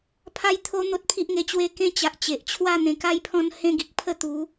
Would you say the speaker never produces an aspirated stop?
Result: no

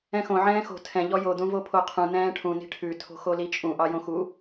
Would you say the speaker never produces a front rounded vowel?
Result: yes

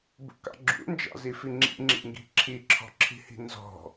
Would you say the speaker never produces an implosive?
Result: yes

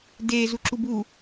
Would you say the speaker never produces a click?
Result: no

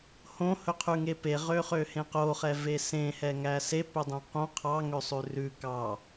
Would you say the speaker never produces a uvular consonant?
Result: no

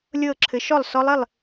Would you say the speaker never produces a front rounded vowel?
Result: yes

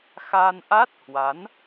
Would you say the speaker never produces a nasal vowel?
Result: yes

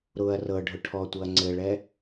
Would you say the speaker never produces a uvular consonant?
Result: yes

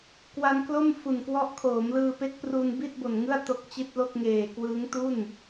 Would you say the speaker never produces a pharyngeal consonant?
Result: yes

